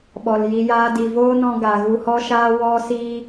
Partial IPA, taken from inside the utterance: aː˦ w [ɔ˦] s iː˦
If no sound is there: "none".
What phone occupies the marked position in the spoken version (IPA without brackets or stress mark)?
ɔ˦